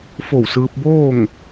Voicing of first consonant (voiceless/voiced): voiceless